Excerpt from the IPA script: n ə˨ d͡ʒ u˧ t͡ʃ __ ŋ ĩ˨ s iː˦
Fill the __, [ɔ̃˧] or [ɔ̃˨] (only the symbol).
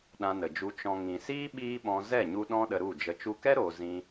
ɔ̃˨